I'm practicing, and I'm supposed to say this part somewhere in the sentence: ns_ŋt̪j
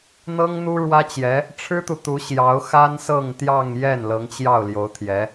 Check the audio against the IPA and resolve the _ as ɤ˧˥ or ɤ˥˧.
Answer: ɤ˥˧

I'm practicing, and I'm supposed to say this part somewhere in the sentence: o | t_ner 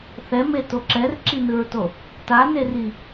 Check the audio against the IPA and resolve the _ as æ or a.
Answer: a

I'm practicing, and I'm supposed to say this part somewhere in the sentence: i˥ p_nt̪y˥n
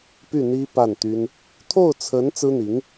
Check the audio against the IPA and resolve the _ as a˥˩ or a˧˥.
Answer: a˥˩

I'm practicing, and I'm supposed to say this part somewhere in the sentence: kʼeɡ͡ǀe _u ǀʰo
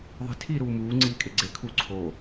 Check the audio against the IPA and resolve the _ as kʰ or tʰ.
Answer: kʰ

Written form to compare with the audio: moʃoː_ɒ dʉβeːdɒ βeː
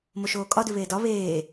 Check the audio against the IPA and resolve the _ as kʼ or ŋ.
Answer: kʼ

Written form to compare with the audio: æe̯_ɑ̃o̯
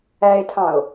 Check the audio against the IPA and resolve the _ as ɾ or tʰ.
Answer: tʰ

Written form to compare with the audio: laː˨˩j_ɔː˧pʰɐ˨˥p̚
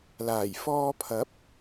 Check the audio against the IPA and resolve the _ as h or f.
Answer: f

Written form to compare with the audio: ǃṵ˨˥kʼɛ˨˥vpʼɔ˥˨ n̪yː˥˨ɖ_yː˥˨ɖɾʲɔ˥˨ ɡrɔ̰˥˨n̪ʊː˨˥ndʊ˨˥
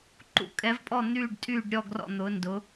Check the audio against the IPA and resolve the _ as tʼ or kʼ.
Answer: tʼ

